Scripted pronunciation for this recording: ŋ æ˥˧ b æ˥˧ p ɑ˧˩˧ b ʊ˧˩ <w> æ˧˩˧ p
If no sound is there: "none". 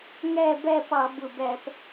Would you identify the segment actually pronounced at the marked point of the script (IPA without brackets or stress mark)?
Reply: b